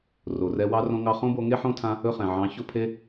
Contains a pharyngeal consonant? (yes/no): yes